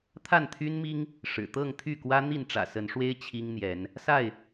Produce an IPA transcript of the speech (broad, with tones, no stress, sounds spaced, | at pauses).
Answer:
t̪ʰ a˥˨ n t̪ʰ y˦ n m i˦ ŋ | ʂ ɻ̩˨˩ t̪ ɤ˥˨ ŋ t̪ʰ y˥˨ k w ä˦ n̪ i˥˨ n ʈ͡ʂ ä̰˨˩ s ə˨˦ n ʂ w e˦ ɪ̯ t͡ɕʰ i˦ ŋ n̪ j ɛ˨˦ n | s a˥˨ ɪ̯